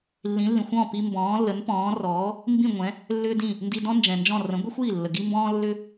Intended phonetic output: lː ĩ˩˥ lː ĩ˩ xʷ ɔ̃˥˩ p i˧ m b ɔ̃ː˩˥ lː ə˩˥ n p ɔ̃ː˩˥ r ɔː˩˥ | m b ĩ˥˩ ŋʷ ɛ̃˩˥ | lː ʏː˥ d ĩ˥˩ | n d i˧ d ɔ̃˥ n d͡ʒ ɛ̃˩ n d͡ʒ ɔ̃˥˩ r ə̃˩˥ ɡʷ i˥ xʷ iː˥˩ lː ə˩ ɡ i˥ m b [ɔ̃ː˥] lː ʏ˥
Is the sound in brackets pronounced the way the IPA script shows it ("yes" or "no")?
yes